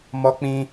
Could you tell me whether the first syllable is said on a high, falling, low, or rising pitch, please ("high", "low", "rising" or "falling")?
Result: high